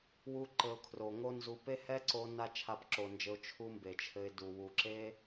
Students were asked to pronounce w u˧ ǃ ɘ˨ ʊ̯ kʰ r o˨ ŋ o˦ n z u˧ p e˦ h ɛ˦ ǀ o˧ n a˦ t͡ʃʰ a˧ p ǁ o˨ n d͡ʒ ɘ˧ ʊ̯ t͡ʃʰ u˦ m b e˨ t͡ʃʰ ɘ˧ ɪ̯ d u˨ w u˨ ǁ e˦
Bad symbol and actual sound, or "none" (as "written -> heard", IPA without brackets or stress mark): none